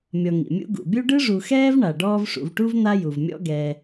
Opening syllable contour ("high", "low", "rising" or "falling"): low